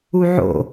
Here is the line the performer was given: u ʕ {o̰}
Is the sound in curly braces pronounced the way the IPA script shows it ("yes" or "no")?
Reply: yes